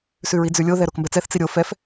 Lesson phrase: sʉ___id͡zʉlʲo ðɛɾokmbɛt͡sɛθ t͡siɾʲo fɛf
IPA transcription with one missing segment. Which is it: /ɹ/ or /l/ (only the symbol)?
ɹ